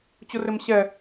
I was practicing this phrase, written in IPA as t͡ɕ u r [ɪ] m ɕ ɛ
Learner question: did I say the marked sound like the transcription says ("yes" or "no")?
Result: yes